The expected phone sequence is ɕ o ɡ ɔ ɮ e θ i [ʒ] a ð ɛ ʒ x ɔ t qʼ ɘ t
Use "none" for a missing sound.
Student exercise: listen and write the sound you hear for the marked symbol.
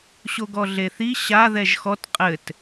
ɕ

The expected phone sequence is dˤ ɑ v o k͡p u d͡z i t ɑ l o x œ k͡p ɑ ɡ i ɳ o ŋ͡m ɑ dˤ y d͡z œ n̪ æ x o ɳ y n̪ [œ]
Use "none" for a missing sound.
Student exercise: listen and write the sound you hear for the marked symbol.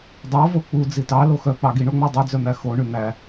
æ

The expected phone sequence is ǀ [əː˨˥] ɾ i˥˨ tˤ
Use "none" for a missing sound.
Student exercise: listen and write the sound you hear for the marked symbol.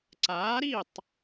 aː˨˥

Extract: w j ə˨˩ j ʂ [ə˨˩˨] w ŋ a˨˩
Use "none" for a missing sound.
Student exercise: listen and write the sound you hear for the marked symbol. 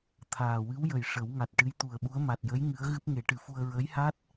ə˨˩˦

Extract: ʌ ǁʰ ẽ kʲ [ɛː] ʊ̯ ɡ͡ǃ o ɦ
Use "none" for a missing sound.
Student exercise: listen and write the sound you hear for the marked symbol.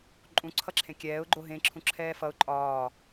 ɛː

